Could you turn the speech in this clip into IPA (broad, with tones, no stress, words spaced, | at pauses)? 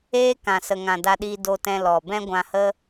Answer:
eː˦kã˨ sə˨ŋã˨da˧ɗiː˧ do˧tɛ̃˧ lɔ˨ bɛ̃˦ɡʷã˧hə˦